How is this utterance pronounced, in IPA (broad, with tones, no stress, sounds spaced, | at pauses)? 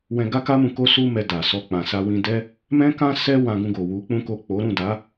w ɛ̃˧ ɡ a˦ k a˦ m ũ˧ k o˦ s u˦ m ɛ˧ d a˨ s ɔ˧ k͡p ã˨ s a˧ w ĩ˧ d ɛ˦ | m ɛ̃˦ k ã˦ s ɛ˦ w ã˧ ɡ ũ˧ ɡ o˨ w u˨˦ k͡p ũ˦ k o˦˨ k͡p o˨˦ ɾ ũ˦˨ d a˨˦